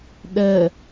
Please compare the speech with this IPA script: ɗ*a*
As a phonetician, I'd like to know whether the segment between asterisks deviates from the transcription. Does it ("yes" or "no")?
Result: yes